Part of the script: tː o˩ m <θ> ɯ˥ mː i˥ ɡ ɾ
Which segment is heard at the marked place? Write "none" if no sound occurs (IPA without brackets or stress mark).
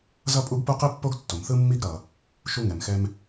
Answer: θ